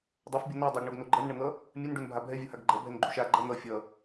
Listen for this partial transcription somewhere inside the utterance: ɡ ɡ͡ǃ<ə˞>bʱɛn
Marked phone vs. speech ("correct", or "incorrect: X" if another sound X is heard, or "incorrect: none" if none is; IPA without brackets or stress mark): incorrect: ʌ